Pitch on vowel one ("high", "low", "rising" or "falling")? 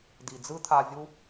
low